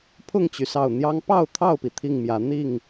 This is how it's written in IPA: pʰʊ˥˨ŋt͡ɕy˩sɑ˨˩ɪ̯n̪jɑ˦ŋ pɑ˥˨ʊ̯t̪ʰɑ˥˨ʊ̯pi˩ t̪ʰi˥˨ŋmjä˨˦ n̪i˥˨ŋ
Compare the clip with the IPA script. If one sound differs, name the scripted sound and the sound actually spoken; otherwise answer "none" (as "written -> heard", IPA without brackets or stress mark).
ɪ̯ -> ʊ̯